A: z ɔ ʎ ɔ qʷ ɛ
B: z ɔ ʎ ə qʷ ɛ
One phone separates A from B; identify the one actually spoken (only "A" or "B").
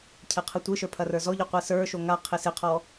A